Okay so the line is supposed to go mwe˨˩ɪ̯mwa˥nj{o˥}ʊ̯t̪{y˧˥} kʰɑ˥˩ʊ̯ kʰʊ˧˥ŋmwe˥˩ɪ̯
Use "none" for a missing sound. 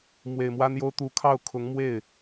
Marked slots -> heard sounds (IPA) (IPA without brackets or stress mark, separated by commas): o˥, u˧˥